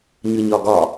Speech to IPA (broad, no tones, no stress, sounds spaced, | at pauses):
ɲ ɯ ɲ ɒ ɡ ɒ